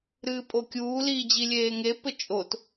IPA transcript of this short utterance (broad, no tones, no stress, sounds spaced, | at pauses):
ɾ ɨː pʼ o kʲ uː l iː d͡ʑ i lʲ eː ŋ e p ɘ t͡ʃʼ o t